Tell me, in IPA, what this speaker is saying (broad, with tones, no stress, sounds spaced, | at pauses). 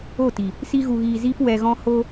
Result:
o˦˨ t i˨ | s i˧ ɣ u˨ ɣ iː˨ z iː˧ p w ɛ˧ ɣ ɔ̃˦ h o˧